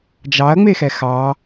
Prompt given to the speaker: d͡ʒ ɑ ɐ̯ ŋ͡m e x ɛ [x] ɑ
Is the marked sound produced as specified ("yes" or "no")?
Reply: yes